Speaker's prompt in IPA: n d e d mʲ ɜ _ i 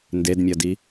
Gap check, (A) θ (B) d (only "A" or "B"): B